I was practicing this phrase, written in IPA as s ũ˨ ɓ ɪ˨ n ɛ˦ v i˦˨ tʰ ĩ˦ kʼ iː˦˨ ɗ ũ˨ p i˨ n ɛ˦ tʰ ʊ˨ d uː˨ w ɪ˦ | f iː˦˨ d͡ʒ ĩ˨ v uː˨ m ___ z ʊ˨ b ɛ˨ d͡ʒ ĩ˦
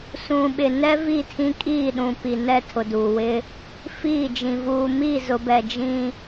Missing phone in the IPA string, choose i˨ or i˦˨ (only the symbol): i˦˨